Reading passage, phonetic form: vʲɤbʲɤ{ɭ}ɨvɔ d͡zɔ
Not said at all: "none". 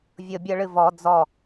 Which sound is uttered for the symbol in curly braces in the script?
ɭ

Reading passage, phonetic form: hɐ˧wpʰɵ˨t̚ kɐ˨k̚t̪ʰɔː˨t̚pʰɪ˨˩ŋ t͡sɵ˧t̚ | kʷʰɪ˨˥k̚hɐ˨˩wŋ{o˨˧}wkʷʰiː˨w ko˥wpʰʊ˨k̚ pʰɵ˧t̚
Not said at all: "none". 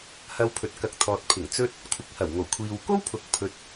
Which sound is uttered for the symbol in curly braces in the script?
o˨˩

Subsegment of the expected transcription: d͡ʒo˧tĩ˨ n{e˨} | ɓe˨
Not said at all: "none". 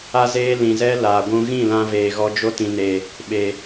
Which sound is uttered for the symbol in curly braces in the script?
e˨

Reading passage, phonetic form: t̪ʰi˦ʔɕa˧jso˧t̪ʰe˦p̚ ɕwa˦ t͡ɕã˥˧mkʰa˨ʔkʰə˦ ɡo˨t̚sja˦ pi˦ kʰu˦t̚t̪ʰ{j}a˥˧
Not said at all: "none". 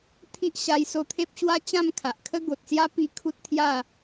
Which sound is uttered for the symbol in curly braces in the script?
j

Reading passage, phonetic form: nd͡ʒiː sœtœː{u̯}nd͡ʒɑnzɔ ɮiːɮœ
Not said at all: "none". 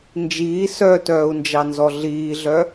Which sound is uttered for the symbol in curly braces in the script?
u̯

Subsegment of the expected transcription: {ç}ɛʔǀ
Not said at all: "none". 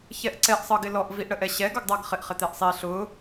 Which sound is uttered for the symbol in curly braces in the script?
ç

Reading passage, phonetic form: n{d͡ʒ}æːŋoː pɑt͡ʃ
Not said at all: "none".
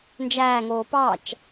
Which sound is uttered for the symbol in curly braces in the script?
d͡ʒ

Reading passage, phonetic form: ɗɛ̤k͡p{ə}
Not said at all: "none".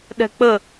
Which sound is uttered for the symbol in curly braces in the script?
ə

